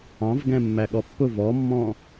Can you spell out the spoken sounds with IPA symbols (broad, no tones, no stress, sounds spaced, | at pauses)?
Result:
ɑ̃ v ɡ ɛ̃ mː æ ɠ ɔ pː ʊ v ɔ mː ɔ̃